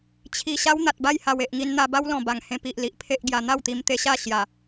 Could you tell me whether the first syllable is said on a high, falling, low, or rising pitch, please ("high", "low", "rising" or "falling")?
low